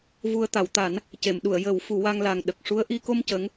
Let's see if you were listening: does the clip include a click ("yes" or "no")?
no